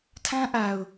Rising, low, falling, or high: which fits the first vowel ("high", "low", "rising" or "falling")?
high